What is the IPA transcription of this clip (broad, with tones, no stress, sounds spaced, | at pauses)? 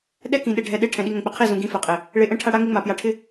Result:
ɗ ɛ˦ k ĩ˨ ɗ e˨ ɖʱ ɛ˨ ɗ e˦ ʈʰ ɛ̃˨ ɗ i˦ ŋ ɛ̃˨ k͡p ɪ˨ qʰ i˦˨ z ũ˨ ɡ ĩ˦ f ɛ˨ qʼ e˨ | ɭ e˨ ʔ ɛ̃˦ ʈʰ a˦ ɽ a˦ ŋ ɪ˦ ŋ͡m a˨ p j a˨ ʈʰ ɪ˦